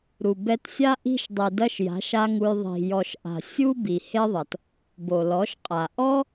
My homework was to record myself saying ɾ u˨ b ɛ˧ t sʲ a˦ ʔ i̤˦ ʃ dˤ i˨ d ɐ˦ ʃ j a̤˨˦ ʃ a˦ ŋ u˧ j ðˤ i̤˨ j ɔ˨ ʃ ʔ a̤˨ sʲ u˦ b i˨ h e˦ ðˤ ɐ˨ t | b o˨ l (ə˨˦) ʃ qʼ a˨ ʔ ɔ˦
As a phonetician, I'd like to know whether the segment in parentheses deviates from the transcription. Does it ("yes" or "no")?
yes